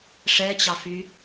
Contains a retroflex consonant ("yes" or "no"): yes